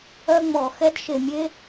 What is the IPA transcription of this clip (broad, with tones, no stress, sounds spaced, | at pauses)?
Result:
œ˦ ŋ͡m ɔ˨ x ɛ˦ d ʃ e˨ mʲ e˦